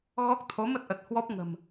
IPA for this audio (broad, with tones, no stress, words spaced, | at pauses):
ɣɔ˦˥k̚ t̪ʰo˨˦mə˦˥t̚ʔə˨˩t̚ hwɔ˦˥p̚ŋə̤˨˩m